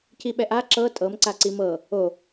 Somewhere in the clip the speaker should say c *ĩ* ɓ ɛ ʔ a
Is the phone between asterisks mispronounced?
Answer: yes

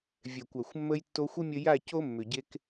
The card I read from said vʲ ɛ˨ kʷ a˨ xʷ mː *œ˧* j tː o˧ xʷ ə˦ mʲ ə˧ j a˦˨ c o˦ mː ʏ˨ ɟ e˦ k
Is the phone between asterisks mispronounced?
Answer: yes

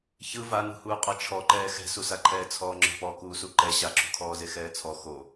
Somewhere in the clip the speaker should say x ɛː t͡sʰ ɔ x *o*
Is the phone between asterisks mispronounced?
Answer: no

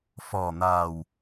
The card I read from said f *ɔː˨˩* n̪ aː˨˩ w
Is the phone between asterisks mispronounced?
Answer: no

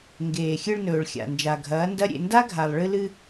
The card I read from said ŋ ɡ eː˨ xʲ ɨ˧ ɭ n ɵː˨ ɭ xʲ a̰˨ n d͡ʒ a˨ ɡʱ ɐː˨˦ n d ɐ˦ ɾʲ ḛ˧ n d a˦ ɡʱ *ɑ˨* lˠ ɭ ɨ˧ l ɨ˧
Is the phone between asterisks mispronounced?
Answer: yes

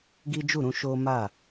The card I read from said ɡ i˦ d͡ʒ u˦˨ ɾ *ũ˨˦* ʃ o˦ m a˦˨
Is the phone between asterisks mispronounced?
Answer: yes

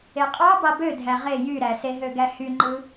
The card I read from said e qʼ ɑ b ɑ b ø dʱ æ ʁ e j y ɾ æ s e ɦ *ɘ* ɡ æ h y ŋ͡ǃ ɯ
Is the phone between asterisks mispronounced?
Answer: yes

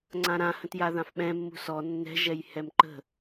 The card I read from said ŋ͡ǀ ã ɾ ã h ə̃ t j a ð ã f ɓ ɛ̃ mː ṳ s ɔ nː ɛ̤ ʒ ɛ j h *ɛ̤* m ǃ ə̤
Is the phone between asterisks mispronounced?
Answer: yes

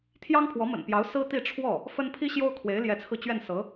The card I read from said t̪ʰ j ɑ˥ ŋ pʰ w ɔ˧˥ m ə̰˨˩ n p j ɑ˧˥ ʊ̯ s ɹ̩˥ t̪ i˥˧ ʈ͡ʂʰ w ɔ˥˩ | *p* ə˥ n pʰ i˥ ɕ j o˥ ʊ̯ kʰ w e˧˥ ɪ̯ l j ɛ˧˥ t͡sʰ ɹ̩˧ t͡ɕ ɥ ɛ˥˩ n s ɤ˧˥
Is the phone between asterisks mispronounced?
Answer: yes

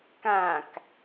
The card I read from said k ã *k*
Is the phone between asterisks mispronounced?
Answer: no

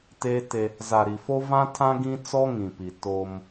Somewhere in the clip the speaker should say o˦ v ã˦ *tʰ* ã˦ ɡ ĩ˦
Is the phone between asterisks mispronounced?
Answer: no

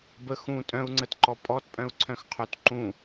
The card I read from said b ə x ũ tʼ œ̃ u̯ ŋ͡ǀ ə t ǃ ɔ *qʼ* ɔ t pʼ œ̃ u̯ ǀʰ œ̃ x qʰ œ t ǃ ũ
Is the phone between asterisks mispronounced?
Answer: yes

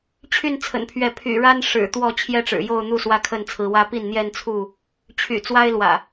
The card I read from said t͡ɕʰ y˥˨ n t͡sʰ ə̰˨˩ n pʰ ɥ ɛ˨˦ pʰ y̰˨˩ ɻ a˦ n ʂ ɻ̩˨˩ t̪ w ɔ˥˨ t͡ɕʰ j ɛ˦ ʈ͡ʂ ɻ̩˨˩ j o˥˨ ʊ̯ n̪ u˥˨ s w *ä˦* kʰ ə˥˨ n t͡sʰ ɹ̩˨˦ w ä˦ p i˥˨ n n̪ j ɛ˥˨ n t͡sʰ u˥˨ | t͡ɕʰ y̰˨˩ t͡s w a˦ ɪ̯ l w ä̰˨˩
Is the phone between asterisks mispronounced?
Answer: no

